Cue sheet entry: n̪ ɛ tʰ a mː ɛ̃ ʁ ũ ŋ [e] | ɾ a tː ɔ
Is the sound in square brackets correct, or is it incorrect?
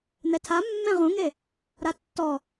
correct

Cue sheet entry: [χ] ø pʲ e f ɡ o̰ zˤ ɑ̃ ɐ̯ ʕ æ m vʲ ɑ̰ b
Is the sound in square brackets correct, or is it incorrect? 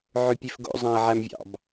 incorrect: ʕ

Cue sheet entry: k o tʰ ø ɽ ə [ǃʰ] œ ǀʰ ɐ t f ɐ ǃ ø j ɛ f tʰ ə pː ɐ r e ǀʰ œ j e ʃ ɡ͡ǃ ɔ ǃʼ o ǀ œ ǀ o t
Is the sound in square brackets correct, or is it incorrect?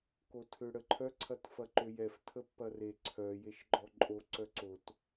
correct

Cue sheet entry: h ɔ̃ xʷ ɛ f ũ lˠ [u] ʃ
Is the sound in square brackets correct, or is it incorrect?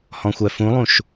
incorrect: ũ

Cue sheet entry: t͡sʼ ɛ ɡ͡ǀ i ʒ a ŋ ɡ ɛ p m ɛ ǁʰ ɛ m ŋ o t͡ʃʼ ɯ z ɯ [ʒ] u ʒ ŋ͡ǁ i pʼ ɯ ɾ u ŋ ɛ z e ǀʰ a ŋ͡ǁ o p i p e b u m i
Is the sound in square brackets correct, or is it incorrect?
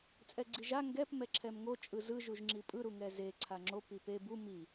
correct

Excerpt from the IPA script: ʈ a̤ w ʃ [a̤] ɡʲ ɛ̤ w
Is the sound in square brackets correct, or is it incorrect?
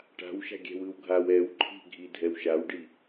correct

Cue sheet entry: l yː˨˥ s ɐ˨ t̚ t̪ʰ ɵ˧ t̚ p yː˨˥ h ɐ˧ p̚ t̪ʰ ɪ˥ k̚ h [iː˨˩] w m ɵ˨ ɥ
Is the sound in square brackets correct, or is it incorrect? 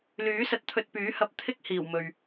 correct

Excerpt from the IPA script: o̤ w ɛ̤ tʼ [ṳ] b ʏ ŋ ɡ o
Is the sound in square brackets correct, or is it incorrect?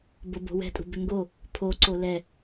correct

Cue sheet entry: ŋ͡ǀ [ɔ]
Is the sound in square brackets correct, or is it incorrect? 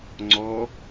correct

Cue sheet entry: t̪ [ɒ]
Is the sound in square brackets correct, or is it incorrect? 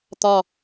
correct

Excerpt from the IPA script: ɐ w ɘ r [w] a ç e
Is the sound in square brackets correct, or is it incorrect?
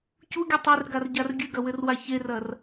correct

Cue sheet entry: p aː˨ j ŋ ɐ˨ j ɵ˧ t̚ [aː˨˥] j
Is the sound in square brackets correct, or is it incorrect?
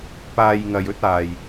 incorrect: aː˨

